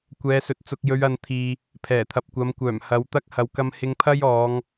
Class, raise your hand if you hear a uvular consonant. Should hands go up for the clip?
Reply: no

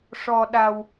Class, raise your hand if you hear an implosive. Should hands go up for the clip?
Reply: yes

